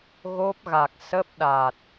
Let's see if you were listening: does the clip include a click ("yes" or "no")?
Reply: no